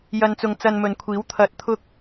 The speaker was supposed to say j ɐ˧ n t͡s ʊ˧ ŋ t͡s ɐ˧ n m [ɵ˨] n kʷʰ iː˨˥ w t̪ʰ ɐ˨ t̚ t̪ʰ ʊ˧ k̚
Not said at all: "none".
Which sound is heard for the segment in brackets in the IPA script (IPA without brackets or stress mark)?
ɵ˨